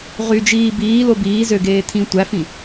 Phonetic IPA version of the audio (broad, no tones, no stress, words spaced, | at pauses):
ʁyd͡ʒiː biːlo biː zøɡeː tʰĩ tʷæfĩ